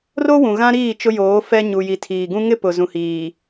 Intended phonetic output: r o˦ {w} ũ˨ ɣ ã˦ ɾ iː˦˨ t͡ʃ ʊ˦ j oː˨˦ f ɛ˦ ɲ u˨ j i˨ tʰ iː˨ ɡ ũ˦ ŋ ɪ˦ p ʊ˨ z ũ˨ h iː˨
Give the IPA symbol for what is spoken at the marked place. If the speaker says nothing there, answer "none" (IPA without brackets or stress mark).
w